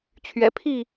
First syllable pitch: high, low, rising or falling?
low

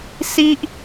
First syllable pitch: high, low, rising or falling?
high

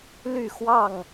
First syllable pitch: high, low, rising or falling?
falling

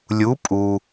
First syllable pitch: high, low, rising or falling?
rising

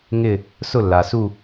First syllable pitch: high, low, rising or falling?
falling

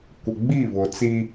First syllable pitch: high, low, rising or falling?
low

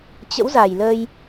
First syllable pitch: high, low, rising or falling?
rising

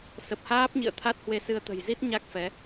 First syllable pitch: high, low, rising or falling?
low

